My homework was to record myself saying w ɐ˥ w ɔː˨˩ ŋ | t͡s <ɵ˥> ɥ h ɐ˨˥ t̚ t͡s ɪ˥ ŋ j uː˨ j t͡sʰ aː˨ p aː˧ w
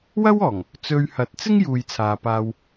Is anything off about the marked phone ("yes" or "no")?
yes